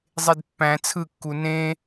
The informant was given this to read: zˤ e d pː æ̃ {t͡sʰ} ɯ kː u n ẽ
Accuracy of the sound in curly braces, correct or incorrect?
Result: correct